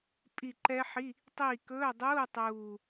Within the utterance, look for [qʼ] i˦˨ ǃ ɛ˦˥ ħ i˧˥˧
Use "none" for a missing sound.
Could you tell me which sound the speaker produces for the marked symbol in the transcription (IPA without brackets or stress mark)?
pʼ